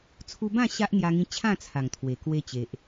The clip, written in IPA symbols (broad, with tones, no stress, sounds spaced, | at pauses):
t͡sʰ u˧ b ã˥˧ ɕ a˦ ʔ n̪ j a˧ ŋ ĩ˧ t͡ɕʰ ã˥˧ t͡sʰ a˨˩ ŋ t̪ʰ w e˨˩ k w e˧ t͡ɕ e˨ ʔ